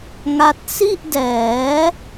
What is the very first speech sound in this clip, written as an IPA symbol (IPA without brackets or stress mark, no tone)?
ŋ